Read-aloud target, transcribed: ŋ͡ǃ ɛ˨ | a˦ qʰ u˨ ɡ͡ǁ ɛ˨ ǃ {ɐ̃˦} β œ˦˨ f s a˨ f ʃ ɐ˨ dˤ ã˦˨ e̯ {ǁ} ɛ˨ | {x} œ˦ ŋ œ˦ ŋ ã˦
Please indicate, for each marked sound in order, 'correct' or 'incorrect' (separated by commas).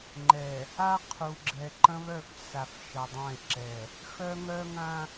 correct, correct, correct